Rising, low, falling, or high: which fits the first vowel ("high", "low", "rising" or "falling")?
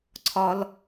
high